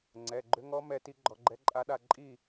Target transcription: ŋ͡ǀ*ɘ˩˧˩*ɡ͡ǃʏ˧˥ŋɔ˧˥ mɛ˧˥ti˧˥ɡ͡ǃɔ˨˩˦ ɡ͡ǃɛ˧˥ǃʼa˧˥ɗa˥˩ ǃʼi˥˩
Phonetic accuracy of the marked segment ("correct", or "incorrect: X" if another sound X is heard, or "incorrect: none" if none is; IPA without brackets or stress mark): incorrect: ɛ˩˧˩